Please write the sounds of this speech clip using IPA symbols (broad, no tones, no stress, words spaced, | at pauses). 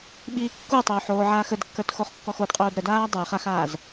ɓiːkːutˤoːħ oːʕaːxədkːə˞t xoχkːɔxodqʼoːd ɾədaː dˤə˞χ axaːz